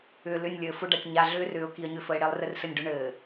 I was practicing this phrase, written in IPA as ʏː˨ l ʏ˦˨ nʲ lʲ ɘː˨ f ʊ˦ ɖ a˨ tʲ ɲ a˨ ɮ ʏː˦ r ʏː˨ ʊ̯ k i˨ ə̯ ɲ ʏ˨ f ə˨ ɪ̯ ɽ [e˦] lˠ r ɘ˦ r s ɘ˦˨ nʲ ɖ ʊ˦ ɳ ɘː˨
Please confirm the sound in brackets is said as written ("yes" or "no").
yes